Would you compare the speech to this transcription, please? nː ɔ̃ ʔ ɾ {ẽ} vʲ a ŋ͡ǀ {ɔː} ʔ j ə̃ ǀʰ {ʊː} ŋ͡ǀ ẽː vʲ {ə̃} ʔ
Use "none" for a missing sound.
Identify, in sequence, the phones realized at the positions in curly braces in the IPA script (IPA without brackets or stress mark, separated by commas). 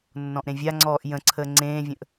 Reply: ẽ, ɔː, əː, ə̃